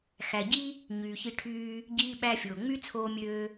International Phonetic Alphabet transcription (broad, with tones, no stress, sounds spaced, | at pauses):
x æ˨ ɟ i˦ | ɲ yː˨ ç i˧ ʈʰ yː˧ | ɟ iː˧ ɓ æ˧ fʲ oː˨ ŋ͡m y˦ t͡sʰ oː˧ mʲ øː˧